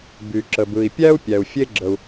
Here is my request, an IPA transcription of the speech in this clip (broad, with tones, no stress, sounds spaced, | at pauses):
b y˩ ǁ ə˩ b ɯ˩ i̯ pʲ æ˥ u̯ pʲ æ˩ u̯ fʲ e˥ ɡ͡ǁ ə˩ u̯